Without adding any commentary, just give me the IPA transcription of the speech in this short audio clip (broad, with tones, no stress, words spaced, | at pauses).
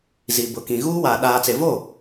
zi˨bʊ˨kĩ˨ ɣuː˦waː˨ ɗaː˨t͡se˨vo˦˨